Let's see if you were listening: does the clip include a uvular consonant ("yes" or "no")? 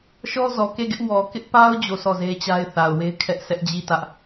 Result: no